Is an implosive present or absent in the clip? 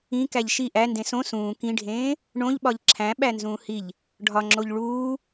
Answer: present